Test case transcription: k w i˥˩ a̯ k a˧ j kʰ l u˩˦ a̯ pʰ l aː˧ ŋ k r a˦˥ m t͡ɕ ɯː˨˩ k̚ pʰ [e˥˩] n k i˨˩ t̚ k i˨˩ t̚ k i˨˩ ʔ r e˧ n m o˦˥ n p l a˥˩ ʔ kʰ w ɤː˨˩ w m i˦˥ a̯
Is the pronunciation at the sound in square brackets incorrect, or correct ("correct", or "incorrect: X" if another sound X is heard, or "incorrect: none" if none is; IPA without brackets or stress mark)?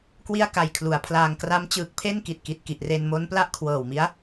correct